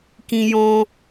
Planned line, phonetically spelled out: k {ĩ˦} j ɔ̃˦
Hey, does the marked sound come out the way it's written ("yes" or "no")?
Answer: yes